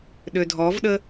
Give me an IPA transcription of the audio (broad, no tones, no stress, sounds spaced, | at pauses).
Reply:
ɗ ø dʱ ɔ v ɗ ə